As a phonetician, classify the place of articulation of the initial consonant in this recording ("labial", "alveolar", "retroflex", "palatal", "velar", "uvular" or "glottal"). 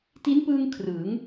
alveolar